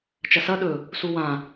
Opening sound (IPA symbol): t͡ʃ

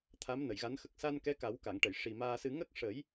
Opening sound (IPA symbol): t̪ʰ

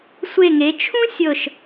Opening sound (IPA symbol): sʷ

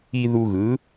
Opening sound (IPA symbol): i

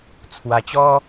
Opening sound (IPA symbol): t͡sʰ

